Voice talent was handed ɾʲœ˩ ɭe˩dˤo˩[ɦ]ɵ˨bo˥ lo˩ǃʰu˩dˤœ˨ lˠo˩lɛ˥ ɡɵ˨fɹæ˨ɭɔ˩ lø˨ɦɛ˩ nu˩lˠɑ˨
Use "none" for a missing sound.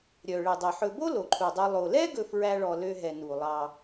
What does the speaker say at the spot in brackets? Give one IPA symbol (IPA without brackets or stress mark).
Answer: ħ